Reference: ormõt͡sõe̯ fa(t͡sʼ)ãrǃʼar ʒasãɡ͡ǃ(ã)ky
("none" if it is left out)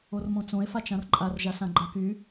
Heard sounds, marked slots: t͡ʃ, a

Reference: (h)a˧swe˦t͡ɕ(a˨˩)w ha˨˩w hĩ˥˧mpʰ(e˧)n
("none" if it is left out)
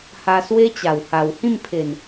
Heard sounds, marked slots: h, a˨˩, e˨˩

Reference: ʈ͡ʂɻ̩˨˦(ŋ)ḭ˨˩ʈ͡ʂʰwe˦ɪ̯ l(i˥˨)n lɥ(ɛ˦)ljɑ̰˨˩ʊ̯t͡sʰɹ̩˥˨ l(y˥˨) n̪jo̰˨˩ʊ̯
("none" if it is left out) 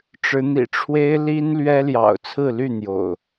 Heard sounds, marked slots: n̪, i˦, ɛ˦, y˥˨

